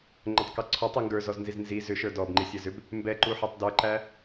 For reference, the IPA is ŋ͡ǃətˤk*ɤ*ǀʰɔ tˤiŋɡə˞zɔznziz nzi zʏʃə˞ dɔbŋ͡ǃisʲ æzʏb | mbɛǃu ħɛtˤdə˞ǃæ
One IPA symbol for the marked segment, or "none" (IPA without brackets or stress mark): ɤ